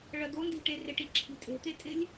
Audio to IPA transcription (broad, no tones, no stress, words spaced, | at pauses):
ɭɜd̪o ndi̤ʈerɪʈ iǁʰi̤tʼe̤ t̪etʼɪlʲ